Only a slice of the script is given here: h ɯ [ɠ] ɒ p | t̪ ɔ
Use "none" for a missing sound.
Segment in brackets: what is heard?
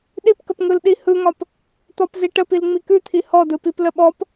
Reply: ŋ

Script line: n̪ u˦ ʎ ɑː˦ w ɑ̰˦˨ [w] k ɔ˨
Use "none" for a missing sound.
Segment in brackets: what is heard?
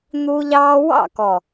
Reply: none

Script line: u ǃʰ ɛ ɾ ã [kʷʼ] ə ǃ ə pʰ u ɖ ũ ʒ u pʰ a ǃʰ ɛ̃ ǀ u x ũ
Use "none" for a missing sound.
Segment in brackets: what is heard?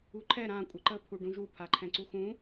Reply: kʷʼ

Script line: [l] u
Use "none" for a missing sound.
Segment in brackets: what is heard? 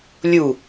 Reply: lʲ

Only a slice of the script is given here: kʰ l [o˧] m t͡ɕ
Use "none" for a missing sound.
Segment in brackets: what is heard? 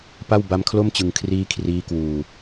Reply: o˥˩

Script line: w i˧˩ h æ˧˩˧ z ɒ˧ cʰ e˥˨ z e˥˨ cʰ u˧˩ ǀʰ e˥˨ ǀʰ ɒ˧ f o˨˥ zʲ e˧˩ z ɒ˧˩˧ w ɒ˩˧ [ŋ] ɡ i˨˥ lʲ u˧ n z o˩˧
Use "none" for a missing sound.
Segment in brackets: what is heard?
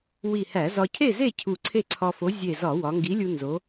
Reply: ŋ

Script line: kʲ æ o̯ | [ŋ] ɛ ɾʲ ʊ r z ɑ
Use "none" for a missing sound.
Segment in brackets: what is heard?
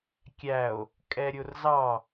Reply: kʼ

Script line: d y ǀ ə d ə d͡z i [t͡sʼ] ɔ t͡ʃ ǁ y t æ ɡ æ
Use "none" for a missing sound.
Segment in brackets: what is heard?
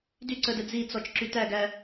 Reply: t͡s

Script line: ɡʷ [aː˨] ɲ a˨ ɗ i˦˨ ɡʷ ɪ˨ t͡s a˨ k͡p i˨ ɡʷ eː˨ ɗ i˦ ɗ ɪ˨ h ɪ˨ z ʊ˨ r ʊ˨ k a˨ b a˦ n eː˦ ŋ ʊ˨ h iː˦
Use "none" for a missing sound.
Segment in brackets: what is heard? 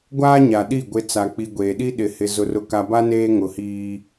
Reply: aː˦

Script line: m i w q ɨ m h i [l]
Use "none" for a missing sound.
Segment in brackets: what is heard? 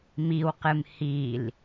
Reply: l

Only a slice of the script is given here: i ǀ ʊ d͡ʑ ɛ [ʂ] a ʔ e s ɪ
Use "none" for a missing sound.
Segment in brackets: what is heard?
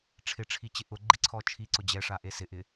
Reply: ʂ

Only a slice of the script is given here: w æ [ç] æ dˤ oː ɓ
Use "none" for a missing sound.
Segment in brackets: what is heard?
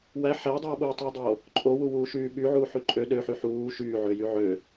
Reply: ħ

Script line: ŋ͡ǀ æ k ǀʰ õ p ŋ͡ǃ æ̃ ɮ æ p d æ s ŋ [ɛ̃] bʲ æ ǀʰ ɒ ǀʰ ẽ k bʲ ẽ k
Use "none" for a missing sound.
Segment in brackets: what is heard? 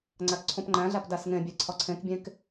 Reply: ẽ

